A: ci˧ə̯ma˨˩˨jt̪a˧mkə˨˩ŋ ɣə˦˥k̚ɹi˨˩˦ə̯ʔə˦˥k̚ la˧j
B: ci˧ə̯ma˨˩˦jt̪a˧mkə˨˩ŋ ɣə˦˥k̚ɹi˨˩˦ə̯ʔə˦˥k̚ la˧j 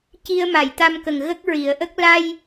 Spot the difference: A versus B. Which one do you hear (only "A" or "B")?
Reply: A